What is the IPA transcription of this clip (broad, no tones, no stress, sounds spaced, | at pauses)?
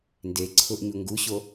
n d e ǀʰ ʊ ʔ ɲ u ŋ ɡ u ɕ o